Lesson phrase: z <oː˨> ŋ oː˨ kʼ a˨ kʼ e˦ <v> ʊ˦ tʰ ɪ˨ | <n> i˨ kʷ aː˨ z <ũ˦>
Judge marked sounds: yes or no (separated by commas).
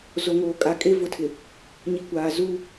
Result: no, yes, no, no